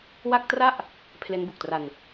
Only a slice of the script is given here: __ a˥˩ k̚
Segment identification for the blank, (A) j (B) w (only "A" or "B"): B